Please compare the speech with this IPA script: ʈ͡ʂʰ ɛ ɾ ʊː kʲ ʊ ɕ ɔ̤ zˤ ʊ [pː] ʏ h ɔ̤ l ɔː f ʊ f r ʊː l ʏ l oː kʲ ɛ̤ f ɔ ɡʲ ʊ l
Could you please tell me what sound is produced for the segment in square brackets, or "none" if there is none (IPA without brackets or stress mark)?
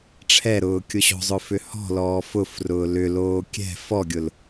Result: f